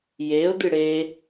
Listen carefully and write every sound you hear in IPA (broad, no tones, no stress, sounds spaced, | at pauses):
j e ʊ̯ d̪ ɨ ɽ e